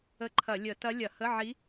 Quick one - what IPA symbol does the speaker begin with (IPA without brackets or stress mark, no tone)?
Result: ə